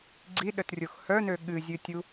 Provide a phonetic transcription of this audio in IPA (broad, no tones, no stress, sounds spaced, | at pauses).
ɡ͡ǀ i ɗ ə t rʲ o x h œ n ø ɠ ɨ zʲ ɨ tʲ u